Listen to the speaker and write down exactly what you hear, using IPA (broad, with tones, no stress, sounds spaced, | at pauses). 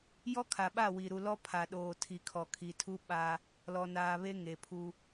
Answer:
j ɔ˦ kʰ a˨ ɓ a˦˨ w i˨ ɾ u˨ l ɔ˦ pʰ a˨ ɗ oː˨ tʰ i˨ kʰ ɔ˨ kʰ i˨ tʰ u˦ ɓ a˦ | l ɔ˨ n aː˨ β e˦ ŋ e˨ pʰ u˦